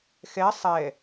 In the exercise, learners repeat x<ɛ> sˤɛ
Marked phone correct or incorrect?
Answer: correct